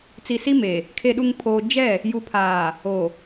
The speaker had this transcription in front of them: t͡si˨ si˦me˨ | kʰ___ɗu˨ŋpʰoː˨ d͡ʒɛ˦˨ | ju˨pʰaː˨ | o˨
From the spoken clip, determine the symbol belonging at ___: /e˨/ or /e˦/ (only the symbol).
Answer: e˨